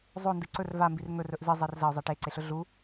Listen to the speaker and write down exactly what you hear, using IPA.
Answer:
zˤ o n d ɨ ǀ ɵ r v a m b i r ŋ ɵ r ɵ ʔ z ɨ zˤ i r z ɐ ʊ̯ zˤ e ʈ e ǀ e ɬ ɵ ɮ u

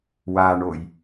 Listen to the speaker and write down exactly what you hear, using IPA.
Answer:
w a ɳ o j

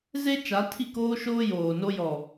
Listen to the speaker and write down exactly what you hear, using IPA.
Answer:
z e˦ t͡ʃ a˨˦ tʰ i˦˨ k oː˦ ʃ oː˦ j oː˨ n o˦ j ɔ˨

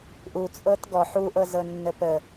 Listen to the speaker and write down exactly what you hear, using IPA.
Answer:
ʔ u t͡sʼ ɤ t ɡ ɔ ħ u ʔ ɤ z ɤ nː ə p ə

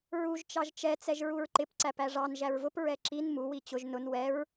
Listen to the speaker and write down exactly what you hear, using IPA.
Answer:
ɹ u ʒ t͡ʃ ɑ ʒ t͡ʃ ɛ t͡s ɛ ʒ ɹ u ɹ ǃ ɪ p ǀ æ p æ ʐ ɑ n ʒ æ ɹ v ʊ p ɹ ɛ ǁ i n m u w i t͡ɕ ʊ ʒ n ʊ n w ɛ ɹ

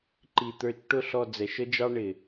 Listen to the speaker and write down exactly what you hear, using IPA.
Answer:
ǃ i˧ t̪ ə˞˧ t͡ʃ ʈ ʊ˦˨ ɬ ɔ˧ d͡z ɛ˨ ʃ ə˦ d͡ʒ ɑ˦ ɳ ɪ˨

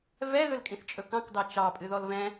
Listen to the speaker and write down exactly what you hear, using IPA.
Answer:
v ɛ ð ɵ l kʼ ĩ θ t͡ʃʼ ɵ k ɑ̃ k d ɑ t͡ʃ ɑ pʼ ɨ ð ɔ l v ɛ̃

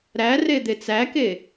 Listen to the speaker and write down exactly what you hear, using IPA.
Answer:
ɾ æ r e d̪ e t͡s æ k e

